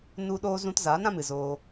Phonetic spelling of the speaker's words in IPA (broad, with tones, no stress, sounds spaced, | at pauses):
n u˧ ɗ oː˧ z ũ˧ t z aː˨˦ n ɾ ã˦ m ɨ˨ z oː˧